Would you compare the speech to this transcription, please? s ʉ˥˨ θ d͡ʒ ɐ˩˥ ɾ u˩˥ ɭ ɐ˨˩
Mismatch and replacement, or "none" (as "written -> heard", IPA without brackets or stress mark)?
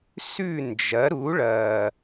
θ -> n